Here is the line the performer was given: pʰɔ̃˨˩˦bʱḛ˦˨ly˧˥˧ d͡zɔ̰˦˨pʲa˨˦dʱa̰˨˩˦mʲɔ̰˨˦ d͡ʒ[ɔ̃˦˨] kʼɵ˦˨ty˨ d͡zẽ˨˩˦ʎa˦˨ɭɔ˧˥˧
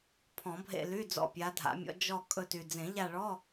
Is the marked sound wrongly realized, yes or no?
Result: yes